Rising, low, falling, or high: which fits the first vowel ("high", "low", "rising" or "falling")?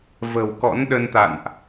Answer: low